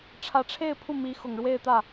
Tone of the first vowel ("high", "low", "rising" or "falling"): rising